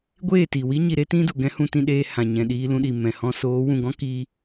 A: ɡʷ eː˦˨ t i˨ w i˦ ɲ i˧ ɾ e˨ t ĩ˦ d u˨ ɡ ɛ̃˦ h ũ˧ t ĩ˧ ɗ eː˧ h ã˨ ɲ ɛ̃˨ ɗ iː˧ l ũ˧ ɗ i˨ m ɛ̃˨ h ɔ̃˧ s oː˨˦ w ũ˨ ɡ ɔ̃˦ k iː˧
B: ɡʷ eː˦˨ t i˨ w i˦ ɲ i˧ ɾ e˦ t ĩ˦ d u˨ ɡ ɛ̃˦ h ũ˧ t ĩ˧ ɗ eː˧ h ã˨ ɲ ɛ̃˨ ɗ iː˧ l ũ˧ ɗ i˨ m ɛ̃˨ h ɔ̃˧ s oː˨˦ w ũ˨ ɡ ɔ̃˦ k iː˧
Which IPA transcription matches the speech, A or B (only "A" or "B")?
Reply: B